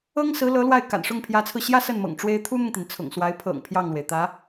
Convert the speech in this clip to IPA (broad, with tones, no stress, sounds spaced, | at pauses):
ɤ˥ ŋ s ɹ̩˧˥ l ɤ˧˥ l w a˥˩ ɪ̯ k a̰˨˩ n ʂ ʊ˥˩ ŋ pʰ j ä˧˥ t͡sʰ ɹ̩˧ ɕ j ä˥ s ə˥˩ n m ɤ̰˨˩ ŋ ʈ͡ʂ w e˥ ɪ̯ t̪ʰ u˥ n̪ ʊ˨ ŋ t̪ i˩ n t͡sʰ ʊ̰˨˩ ŋ s w a˧˥ ɪ̯ pʰ ɤ̰˨˩ ŋ pʰ j ɑ˥˩ ŋ l w e˩ ɪ̯ t̪ ä˧˥